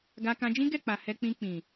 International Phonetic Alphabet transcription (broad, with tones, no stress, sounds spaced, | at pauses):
ɡ a˧ k ã˧ d͡ʒ ĩ˦ ɡ ɛ˦˨ k͡p a˨ h ɛ˧ k͡p ĩ˧ k͡p ĩ˨